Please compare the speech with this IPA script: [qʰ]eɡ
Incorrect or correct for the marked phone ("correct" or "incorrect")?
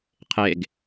correct